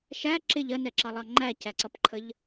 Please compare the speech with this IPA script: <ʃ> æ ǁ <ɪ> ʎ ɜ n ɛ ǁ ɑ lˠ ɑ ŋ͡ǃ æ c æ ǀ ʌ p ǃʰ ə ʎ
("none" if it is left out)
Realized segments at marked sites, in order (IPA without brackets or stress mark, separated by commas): ʃ, ɪ